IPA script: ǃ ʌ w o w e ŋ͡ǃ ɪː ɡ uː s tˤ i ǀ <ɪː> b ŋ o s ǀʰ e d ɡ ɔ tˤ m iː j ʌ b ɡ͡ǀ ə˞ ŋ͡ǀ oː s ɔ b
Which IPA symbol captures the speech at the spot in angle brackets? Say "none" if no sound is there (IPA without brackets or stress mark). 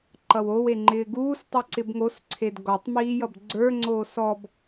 ɪ